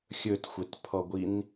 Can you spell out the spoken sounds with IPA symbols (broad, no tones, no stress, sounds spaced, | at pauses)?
xʲ ɵ t xʷ e t pʰ ɔ ɡʷ i n